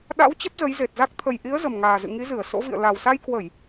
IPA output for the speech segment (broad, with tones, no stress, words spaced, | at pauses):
ɗa̰˧˥w t͡ɕə˦˥p̚zə˨˦jze˨˩t̚za˦˥k̚ t̪ʰə˨˩jʔi˨˦ə̯ zə˨˩mŋaː˨˩ zɨ̰˧˨ŋi˨˦zɨ˧˩ə̯ so̰˧˥vḭ˧˨ə̯ la˨˩wsa˧jkwə˧˩˨j